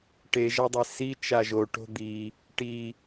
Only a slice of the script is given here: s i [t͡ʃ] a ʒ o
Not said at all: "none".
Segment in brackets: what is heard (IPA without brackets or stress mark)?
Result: t͡ʃ